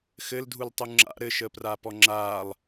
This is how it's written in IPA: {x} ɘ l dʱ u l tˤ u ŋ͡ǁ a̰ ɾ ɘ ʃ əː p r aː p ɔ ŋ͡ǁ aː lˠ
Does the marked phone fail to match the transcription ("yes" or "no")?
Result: no